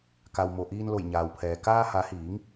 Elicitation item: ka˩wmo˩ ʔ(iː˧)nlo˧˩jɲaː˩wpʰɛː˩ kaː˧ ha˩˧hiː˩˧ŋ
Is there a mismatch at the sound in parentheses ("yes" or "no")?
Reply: no